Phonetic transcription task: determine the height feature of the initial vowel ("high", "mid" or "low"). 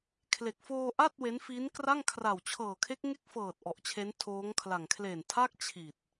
mid